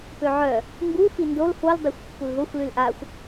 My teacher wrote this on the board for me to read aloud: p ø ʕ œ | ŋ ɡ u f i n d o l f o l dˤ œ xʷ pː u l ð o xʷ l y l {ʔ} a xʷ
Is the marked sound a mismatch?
no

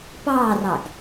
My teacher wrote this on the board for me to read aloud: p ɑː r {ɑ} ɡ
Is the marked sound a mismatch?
no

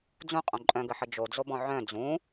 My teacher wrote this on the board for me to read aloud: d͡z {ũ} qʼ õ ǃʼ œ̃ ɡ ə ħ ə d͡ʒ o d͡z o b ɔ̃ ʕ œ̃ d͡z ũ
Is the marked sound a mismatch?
no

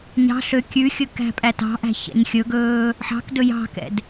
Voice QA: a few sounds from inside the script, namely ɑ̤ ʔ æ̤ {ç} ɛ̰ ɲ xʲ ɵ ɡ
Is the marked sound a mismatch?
no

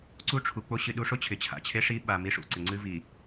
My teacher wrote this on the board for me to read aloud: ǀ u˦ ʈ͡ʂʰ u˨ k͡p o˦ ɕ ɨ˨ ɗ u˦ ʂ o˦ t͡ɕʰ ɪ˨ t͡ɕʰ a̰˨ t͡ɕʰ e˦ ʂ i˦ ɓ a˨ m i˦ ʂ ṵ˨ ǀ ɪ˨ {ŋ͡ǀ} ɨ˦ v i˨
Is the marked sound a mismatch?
no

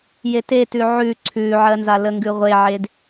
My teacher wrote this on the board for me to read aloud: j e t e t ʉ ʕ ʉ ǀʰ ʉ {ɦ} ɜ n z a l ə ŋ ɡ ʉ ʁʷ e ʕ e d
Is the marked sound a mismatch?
yes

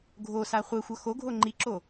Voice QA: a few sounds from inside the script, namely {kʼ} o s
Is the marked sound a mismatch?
yes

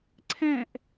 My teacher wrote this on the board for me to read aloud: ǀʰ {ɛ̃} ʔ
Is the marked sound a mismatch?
no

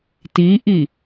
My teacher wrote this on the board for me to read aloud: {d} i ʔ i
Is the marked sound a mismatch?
yes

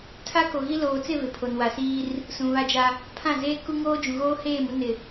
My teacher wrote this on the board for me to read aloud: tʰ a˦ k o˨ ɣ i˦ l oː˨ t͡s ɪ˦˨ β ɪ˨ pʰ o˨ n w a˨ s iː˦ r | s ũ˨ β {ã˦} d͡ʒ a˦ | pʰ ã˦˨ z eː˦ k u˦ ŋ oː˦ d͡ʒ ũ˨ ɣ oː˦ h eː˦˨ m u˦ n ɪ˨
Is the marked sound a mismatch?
yes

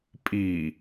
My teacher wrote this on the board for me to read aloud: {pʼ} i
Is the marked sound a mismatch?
no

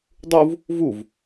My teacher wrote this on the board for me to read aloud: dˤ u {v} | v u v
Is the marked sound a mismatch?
no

